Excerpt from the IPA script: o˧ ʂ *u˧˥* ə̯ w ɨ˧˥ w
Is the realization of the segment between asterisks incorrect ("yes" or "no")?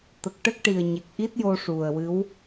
yes